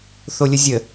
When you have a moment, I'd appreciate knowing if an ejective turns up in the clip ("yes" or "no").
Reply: no